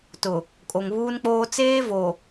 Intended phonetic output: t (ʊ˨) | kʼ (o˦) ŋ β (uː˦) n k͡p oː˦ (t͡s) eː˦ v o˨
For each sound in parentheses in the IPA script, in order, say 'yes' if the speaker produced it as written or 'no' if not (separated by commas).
yes, no, yes, yes